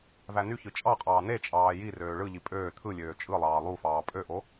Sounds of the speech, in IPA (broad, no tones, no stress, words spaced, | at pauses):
vænyçɯ t͡ʃʼɑqʼɑː ne t͡ʃʼɑːjirøː ɭɯʎi pʼøː t̪ʰɯlʲøː t͡ʃʼɯlˠɑː lˠufɑː pʼøʔo